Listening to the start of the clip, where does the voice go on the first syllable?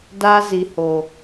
high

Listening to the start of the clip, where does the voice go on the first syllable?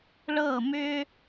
falling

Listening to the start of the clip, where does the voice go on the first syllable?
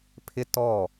high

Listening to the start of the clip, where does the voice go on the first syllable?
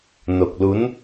low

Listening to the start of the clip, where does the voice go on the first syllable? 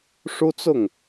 high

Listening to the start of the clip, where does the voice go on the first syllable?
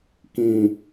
low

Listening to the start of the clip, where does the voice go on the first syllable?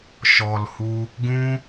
low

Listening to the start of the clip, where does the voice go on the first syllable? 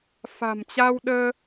low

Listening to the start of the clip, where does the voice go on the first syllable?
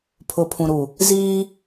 low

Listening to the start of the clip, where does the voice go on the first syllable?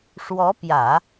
rising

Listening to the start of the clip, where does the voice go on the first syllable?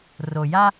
low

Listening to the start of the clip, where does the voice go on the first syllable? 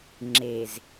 low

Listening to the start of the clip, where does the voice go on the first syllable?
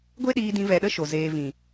high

